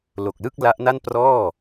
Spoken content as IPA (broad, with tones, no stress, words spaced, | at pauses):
lo˨˩k̚lɯ˥˩k̚ la˦˥ʔna˥˩nprɔː˥˩